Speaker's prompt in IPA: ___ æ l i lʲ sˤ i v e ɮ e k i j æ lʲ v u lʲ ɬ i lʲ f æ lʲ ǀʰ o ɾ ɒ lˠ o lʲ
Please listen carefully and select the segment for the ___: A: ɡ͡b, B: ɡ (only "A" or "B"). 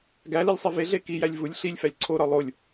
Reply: B